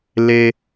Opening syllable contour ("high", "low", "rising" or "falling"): high